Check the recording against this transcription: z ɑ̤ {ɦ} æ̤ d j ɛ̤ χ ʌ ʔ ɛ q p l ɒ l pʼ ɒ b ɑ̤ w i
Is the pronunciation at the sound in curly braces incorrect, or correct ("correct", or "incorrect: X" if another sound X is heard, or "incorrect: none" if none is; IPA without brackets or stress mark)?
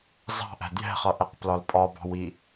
incorrect: ʔ